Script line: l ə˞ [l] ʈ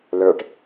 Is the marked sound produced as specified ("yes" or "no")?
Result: no